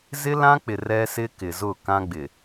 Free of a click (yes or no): yes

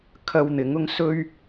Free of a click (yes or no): yes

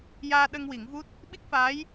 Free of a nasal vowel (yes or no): yes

